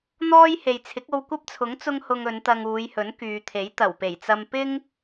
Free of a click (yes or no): yes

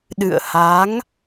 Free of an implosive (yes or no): no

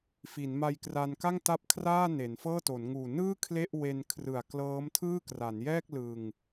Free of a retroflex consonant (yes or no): yes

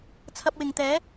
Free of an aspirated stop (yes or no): no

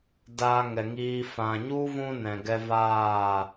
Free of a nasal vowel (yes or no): no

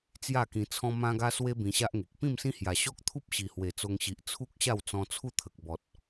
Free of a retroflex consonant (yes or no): yes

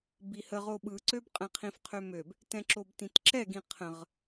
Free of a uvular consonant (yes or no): no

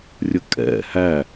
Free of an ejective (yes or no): no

